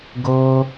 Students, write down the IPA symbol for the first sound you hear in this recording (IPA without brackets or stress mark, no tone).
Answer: ɡ